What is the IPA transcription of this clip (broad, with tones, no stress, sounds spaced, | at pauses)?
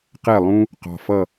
q ɛ˥˩ lˠ ũ˥ | q ɑ̤˨ f ʌ˥˩